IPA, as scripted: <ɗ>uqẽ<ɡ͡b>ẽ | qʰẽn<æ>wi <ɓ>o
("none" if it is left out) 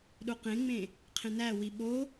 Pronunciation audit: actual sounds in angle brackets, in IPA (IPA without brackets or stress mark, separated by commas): ɗ, ŋ͡m, æ, ɓ